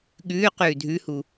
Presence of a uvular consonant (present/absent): present